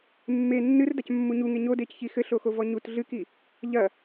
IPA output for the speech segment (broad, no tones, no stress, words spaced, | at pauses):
mːe nːɨrdacmːu ɲuŋe ɲodecçi xɘɬoxovɔ ɲut ɮɨki | ʎɐ